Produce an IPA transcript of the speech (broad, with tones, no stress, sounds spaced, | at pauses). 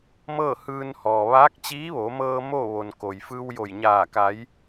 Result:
m ɤː˥˨ h ɯː˧ n h ɔː˩ ʋ aː˧˥ k̚ t͡ɕ iː˧˥ ʋ o˩˧ m ɤː˧ m o˥˨ ʋ o˩ n k o˩ j f ɯː˧ w j o˧˩ j ɲ aː˧˩ k a˩˧ j